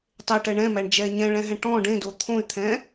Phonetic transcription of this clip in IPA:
tˤ e ʈ ɛ ɳ ɛ̃ m æ ɳ d͡ʒ ɛː ɲ ɛ̃ ɭ ɛ̃ ɦ ɛ̃ ʈ ɔ̃ ɖ ẽ d o t̪ʰ õ y̯ t̪ʰ ɛ̃ː

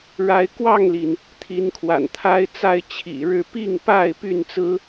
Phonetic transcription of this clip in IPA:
ɻ a˨˦ ɪ̯ k w ɑ˥˨ ŋ l i˩ n | t̪ʰ i˨˦ n kʰ w a̰˨˩ n t̪ʰ a˦ ɪ̯ t͡s a˥˨ ɪ̯ t͡ɕʰ ḭ˨˩ ɻ ɻ̩˥˨ p i˥˨ ŋ p a˥˨ ɪ̯ p y˥˨ n t͡s ɹ̩˦

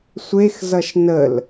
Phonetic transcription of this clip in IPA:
sʷ e x z ʌ ʃ n ə l

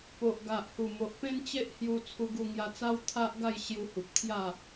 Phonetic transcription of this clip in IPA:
p o˨ ʔ ɡ a˨ ʔ h u˨˩ m o˨ ʔ p ẽ˦ n t͡ɕ e˦ ʔ h j u˧ t͡sʰ u˧ ɡ u˧ ŋ j a˧ t͡s a˦ w t̪ʰ a˦ ʔ ɡ a˥˧ j ɕ j u˧ h u˨ p̚ t̪ʰ j a˥˧

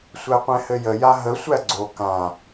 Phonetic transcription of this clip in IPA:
sʷ æ qʷ ɛ̃ h ɘ j ə j a ɦ ə sʷ æ ɡ͡ǀ o k ã

